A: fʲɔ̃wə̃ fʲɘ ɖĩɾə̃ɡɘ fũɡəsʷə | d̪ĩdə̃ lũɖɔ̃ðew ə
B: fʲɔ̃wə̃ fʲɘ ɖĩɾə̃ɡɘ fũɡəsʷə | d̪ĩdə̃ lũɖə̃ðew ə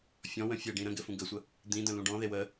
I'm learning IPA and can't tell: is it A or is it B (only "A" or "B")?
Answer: A